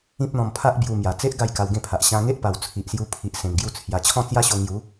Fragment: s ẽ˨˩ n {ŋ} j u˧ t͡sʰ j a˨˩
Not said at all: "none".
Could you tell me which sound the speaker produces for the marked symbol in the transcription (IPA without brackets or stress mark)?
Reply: ɡ